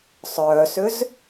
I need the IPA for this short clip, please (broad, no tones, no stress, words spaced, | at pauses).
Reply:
sˤœːsʏz